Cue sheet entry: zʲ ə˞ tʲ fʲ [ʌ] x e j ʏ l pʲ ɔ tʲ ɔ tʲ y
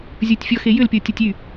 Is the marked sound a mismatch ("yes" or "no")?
yes